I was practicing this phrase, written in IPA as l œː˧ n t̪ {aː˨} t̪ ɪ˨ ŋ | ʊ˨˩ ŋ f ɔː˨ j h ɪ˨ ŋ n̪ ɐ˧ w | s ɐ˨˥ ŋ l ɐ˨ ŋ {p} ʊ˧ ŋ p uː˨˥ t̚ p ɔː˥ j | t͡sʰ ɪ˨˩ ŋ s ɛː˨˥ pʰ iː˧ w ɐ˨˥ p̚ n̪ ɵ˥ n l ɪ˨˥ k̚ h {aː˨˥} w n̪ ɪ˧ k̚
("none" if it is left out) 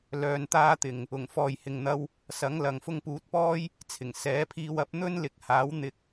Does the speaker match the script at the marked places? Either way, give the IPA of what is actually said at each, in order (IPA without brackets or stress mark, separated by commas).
aː˥, f, aː˨˥